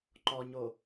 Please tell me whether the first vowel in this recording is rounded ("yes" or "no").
yes